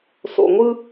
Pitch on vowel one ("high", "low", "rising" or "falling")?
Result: low